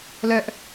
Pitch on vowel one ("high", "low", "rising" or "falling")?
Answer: high